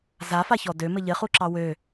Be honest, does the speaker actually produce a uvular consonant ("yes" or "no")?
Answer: yes